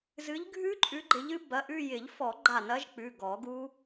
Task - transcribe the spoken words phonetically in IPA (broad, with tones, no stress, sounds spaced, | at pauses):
z ɨ˨˦ ʎ ɡʱ ʉ˦˥ ǃʼ ʉ˨˦ ɡ͡ǃ ɪ˨˦ ʎ ɨ˦˥ b ɐ˩˧˩ ʔ ʉ˥˧ j ɪ˨˩˦ ʎ f ɔ˨˩˦ ɡ͡ǃ a˧˩ n ɐ˦˥ ʒ k͡p ʉ˩˧˩ ɡ ɔ˨˩˦ ɡ u˦˥